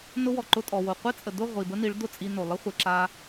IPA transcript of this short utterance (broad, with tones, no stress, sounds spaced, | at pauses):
n ʊ˧ w ɔ˨ ǃ ʊ˧ tʼ ɔ˨ w o˨ qʷ e˦ t͡sʼ ə˨ d ʊ˦˨ ʁʷ i˨ b ə˦ n i˨˦ ɭ d ʊ˦˨ t͡sʼ i˧ n o˨ lˠ ə˦ χʷ e˨ ǁ a˧